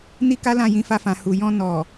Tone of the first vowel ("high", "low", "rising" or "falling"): high